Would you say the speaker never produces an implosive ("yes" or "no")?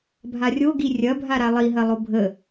yes